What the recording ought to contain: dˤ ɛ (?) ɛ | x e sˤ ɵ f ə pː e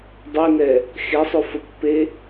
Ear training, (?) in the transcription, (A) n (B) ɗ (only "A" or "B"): A